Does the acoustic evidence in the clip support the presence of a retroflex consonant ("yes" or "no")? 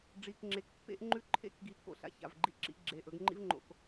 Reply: yes